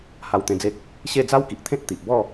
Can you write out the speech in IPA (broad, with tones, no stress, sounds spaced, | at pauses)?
h a˧ w t̪ ẽ˧ d͡z e˦ k̚ | ɕ e˥˧ d͡z a˦ w k i˨ ʔ t̪ʰ ẽ˦ t̚ t̪ i˨ ʔ b ɔ˥˧